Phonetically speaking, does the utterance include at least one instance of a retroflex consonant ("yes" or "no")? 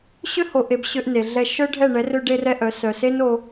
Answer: yes